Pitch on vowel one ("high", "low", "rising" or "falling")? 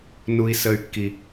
high